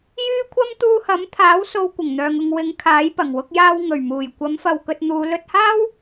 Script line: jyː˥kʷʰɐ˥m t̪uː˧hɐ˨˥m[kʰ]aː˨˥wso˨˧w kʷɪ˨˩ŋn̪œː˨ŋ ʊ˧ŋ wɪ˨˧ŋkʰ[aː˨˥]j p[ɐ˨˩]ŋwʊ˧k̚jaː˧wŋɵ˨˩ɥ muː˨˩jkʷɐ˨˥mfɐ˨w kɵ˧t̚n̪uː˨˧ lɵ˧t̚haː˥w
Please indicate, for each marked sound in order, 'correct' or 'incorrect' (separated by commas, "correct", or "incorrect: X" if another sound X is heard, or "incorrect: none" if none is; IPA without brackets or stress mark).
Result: incorrect: t̪ʰ, correct, correct